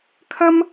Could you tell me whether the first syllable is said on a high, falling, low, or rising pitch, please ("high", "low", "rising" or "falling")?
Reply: high